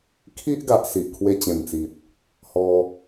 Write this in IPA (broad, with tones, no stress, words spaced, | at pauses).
kʰi˦ʔɡa˨ʔ si˨ʔkʰwe˧t͡ɕẽ˨˩mt͡si˨t̚ | hɔ˧